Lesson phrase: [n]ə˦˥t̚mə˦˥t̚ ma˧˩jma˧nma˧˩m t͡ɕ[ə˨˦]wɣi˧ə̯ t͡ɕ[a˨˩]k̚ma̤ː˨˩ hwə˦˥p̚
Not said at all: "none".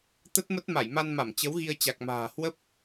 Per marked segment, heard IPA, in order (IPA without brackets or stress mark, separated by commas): t̪, ə˨˦, a˨˩